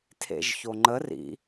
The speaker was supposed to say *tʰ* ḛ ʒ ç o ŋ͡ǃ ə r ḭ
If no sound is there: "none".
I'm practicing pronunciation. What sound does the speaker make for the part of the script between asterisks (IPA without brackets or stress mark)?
tʰ